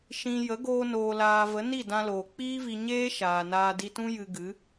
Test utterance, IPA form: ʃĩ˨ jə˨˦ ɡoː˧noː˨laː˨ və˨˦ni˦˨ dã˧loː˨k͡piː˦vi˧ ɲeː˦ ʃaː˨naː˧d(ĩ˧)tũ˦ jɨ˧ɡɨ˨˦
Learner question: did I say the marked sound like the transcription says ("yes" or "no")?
no